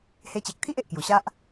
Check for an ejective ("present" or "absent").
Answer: absent